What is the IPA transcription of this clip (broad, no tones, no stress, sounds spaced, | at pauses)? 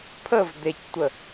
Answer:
pʰ ə v d̪ e c tʷ ə